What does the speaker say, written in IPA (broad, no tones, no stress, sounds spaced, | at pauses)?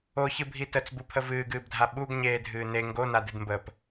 o ç ɨ bʱ i t ə t͡s b u pʰ ə v ɨː ɡ ɨː b dʱ a ɓ u ɡ ɲ eː dʱ ɨː n e ŋ ɡ o n a d ɨ d m b əː p